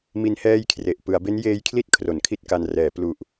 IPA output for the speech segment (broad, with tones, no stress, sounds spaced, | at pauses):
m i˦˥ n h ɛː˥˩ j kʰ r e˨˩ ʔ p ɯ˩˦ a̯ b e˦˥ n j eː˦˥ j kʰ l i˥˩ t̚ kʰ r o˩˦ n kʰ i˥˩ t̚ k a˧ n r ɛː˩˦ p l u˨˩ ʔ